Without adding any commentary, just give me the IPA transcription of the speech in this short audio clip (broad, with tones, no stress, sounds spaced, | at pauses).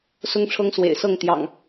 s ʊ˦ ŋ ʈ͡ʂʰ ɤ˦ ŋ s w ḛ˨˩ ɪ̯ s ɤ˥˨ ŋ t̪ j ɑ̰˨˩ ŋ